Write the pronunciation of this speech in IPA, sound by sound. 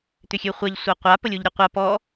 t̪ʏxʲøχʷaʎ sʷaqʷa pəlʲoʎɾʲøqʷa pɔ

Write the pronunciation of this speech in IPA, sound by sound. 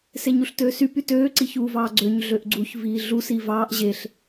seɲuɬtøːsy pytøː ǀiçuːvɑːɡ͡ǀøɲ ɮøʔɡ͡ǀuç viːɮu siːvɑːʔ ʑeɬ

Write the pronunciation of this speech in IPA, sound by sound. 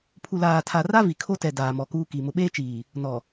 pʰu˨laː˨tʰa˨ra˦ vi˨kʰo˦ tɛ˨ daː˨mɔ˨kuː˦ki˨ mʊ˨ɓeː˦t͡ʃiː˨ | nɔ˨

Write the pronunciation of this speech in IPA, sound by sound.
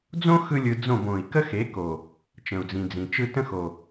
d͡zõ˦ xɯ˦lʲɯ˧ d͡zõ˦˨bõ˨i̯ kə˦xe˨˦ko˨ | t͡ʃə̃˨u̯d͡zĩ˨d͡zĩ˨t͡ʃɯ˦ tə̃˦xo˨

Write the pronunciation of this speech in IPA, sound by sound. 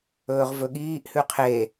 ɵːʁvɵɠiːʔ hʉqʰe

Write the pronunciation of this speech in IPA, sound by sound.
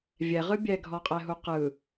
vʲɛʁɯ bʲɛɡʱɔqʼɛɦu qɯ

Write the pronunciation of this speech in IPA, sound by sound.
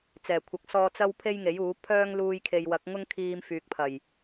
t͡sɛː˨˩kʷʰɐ˨˥k̚sɔː˧ t͡sɐ˥wpʰe˥jŋe˨˥juː˨˥ pʰœː˥ŋ luː˧j kʰe˨jwɐ˨˥k̚ ŋʊ˥ŋkʰiː˧mfyː˨k̚pʰɐ˨˩j

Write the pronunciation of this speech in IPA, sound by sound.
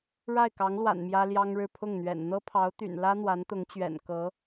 ɻa˥˩ɪ̯kɑ˧˥ŋlwa̰˨˩n mjä˥ljɑ˥ŋɻɻ̩˥˧ pʰʊ˥˩ŋn̪ɥɛ̰˨˩n n̪ɤ˥pʰɑ˧˥ʊ̯t̪y̰˨˩n lä˥n̪wa˧˥nt̪ʊ˧˥ŋt͡ɕɥɛ̰˨˩n kɤ˧˥

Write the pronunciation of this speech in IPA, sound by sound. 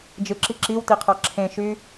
d͡ʒɯǁi ǁiwtiqʰɑ ǁʰẽʃy

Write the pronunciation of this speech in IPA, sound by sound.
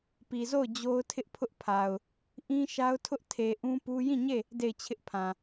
pi˨zo˦˨ʊ̯ d͡ʑo˦ʊ̯tʰɪ˦ʔpʰʊ˦ʔpʰa˨ʊ̯ | ʔĩ˦ʃa˦ʊ̯tʰʊ˦ʔ tʰe˨ ʔũ˦pu˦ jĩ˦˨ɲe˦˨ | de˦˨ɪ̯t͡ɕʰɪ˦ʔpʰã˨

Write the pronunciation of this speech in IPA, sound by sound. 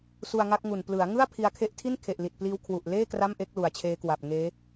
su˧a̯ŋa˦˥k̚ŋu˨˩n plɯ˩˦a̯ŋɯ˥˩a̯ pʰi˧a̯kʰe˥˩ʔ tʰi˥˩nkʰe˨˩ʔ li˨˩t̚pliː˦˥w kʰwu˨˩ʔleː˥˩ kra˥˩mʔe˥˩k̚lu˨˩a̯ t͡ɕʰeː˦˥kwa˨˩p̚ ŋeː˦˥

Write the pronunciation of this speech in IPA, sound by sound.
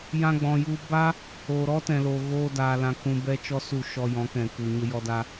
jã˧ɡ͡bɔ̃˨ju˧ ba˦ | oː˨ɾɔ˦tɛ̃˨loː˨ ɣoː˧ daː˨lã˨kũ˨ bɛ˦t͡ʃɔ˦su˦˨ ʃɔ˧jɔ̃˨˦ kɛ̃˨ku˨ ɲə˧jɔ˧da˧

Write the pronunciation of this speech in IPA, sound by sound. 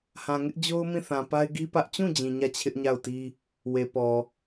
hã˨ŋɪ˦ʔd͡ʑo˦ʊ̯ mĩ˦˨θã˨ pa˦ɪ̯ɡi˦ pä˦ʔ t͡ɕũ˦˨ d͡ʑĩ˨ɲä˦˨ t͡ɕʰɪ˦ʔɲa˦˨ʊ̯ti˦ | we˨pɔ˨

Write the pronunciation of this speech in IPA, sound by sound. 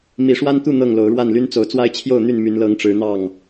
mi˨˦ʂwa˦nt̪u˥˨ n̪ɤ˥˨ŋlo˨˦ʊ̯ ɻwa˥˨nly˦nt͡so˨˦ʊ̯ t͡swa˦ɪ̯t͡ɕʰjo˥˨ʊ̯n̪y˥˨n my˨˦nlɤ˨˦ŋ ʈ͡ʂɻ̩˨˦n̪ɑ˥˨ŋ

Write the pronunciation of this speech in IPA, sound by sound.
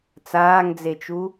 t͡saːŋd͡zet͡ʃu

